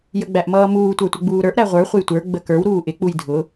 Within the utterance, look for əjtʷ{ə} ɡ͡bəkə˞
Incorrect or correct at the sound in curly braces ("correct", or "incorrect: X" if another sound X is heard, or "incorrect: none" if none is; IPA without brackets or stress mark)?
incorrect: ə˞